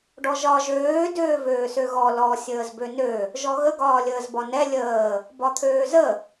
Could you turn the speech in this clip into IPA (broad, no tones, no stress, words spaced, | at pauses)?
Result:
ɖɔʒɒ ʒøː døːvøːsøɣɔ lɔ sʲəːzbønø | ʒɔɣə ɡɒːlʲəːzbɒnɛ lʲəː | bɒt̪ʰøːzə